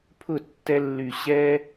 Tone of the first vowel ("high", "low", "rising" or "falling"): falling